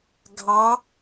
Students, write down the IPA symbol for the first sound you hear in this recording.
ɡʱ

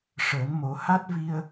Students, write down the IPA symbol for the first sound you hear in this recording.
ʂ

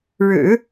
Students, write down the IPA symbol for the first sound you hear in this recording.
ɻ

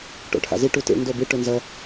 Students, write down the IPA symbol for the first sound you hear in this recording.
ʈ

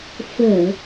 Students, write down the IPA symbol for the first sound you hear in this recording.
f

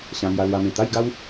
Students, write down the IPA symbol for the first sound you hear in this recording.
ɕ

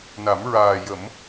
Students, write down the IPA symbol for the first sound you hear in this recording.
n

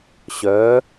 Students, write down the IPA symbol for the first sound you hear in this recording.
ɕ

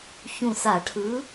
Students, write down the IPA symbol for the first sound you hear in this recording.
ç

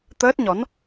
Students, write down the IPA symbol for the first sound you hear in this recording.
t̪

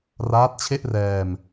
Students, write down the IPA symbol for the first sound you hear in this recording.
r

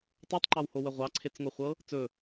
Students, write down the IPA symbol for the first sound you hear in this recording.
tˤ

